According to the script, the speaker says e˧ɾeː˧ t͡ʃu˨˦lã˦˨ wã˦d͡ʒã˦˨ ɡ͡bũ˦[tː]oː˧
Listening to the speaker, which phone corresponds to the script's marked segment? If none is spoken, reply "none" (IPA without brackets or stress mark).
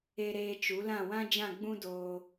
d